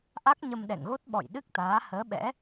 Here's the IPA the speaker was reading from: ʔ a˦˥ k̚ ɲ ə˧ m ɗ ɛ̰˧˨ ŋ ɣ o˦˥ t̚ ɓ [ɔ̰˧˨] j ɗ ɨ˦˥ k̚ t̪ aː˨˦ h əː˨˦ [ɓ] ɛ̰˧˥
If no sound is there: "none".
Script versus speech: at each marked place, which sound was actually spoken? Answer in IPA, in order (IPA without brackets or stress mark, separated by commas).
ɔ̰˧˨, ɓ